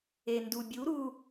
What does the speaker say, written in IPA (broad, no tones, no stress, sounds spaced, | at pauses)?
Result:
e n d u bʲ u ɾ u